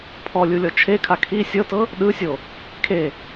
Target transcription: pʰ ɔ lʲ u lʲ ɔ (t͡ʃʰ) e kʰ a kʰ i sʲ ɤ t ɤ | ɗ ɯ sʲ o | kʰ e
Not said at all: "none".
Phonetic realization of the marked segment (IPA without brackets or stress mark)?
t͡ʃʰ